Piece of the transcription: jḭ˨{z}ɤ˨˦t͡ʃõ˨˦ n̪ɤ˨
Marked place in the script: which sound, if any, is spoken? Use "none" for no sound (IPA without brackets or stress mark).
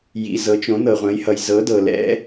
z